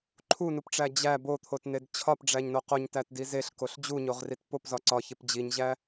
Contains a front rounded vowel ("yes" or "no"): no